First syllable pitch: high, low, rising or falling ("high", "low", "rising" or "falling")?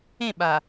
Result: falling